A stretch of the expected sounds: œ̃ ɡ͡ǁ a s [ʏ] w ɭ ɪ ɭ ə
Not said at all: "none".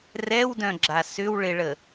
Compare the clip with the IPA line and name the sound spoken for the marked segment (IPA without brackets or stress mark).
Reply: ʏ